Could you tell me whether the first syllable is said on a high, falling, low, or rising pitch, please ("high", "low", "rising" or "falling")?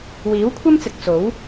rising